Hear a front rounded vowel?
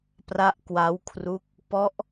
no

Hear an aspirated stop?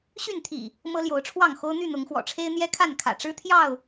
yes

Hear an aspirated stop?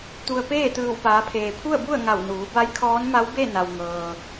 yes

